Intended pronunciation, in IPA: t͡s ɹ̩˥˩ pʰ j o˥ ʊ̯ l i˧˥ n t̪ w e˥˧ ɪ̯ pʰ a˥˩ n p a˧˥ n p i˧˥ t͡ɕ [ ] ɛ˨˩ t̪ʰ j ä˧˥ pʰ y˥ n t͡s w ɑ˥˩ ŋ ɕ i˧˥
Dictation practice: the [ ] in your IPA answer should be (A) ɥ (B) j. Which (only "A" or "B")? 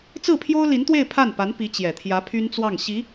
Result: B